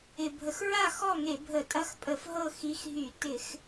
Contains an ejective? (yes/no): yes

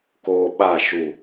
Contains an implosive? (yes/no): yes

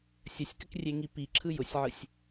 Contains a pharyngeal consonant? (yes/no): yes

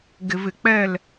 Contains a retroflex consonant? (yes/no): no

